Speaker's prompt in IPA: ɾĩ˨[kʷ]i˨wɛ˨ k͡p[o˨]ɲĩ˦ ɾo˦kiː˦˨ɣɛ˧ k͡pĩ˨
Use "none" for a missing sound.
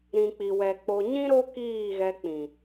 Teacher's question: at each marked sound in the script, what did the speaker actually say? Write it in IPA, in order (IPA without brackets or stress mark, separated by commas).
k͡p, o˨